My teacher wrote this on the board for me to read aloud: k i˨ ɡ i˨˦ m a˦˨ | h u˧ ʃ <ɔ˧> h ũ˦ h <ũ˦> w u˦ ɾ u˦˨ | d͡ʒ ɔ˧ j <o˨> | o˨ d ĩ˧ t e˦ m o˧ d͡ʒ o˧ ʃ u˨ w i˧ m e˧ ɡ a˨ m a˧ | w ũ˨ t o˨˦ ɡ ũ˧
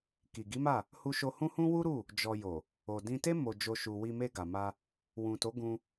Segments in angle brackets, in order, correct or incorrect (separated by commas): incorrect, correct, correct